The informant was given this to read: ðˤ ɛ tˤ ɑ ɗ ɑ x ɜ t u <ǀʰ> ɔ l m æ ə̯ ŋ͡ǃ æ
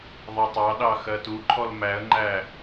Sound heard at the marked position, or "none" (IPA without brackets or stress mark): ǃʰ